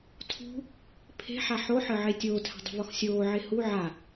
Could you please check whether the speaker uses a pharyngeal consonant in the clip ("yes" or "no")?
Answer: yes